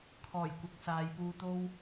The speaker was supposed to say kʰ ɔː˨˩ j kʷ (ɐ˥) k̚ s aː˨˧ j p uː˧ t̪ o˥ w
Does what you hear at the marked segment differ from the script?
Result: yes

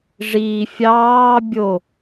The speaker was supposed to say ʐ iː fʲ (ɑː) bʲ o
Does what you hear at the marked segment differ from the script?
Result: no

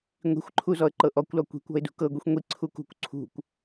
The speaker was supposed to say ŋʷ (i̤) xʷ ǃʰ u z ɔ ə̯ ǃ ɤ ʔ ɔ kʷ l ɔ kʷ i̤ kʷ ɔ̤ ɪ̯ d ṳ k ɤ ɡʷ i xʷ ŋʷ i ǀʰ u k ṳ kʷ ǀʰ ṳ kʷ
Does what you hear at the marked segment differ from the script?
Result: no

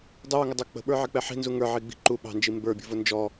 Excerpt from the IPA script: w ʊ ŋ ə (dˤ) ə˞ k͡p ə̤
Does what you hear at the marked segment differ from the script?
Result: no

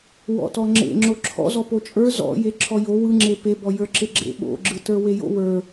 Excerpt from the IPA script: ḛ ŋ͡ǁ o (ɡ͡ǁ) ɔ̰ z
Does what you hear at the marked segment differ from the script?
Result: yes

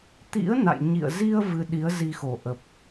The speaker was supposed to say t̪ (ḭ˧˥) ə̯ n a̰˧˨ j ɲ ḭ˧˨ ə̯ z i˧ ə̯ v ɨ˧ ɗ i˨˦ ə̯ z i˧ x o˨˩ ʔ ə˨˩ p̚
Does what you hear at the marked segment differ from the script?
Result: no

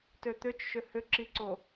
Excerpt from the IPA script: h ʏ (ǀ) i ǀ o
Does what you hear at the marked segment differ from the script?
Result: yes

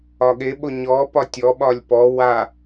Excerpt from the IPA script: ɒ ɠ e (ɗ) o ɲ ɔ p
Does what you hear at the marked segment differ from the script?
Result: yes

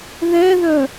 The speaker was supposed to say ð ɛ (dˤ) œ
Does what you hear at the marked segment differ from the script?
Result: yes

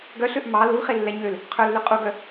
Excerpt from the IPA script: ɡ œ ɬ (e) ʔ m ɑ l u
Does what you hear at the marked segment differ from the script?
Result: yes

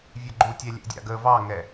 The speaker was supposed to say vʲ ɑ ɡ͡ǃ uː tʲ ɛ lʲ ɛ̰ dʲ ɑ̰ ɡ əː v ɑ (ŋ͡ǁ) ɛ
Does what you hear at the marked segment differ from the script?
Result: yes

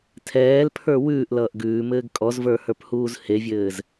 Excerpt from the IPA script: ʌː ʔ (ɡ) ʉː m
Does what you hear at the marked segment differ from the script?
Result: no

